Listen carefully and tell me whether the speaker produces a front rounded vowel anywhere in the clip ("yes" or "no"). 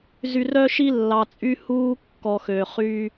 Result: yes